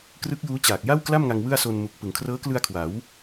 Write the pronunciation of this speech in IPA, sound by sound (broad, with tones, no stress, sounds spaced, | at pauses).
k r ɯ˦˥ k̚ j uː˦˥ t͡ɕ aː˨˩ k̚ j a˥˩ w k l a˥˩ m ŋ a˧ ŋ w ɯ˥˩ a̯ s o˧ n m u˨˩ k̚ p ɯ˩˦ ŋ kʰ r ɤː˦˥ k l ɯ˧ a̯ kʰ w a˩˦ w